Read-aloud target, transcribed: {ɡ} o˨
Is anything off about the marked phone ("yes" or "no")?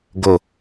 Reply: no